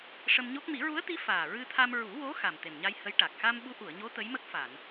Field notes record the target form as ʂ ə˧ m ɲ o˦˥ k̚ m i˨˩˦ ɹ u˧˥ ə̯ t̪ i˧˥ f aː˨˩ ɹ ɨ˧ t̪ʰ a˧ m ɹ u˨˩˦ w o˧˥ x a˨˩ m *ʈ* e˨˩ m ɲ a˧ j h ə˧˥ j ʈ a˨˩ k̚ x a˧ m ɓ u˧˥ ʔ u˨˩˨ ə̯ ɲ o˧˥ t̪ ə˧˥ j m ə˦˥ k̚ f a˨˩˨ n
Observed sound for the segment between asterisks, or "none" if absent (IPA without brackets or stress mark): t̪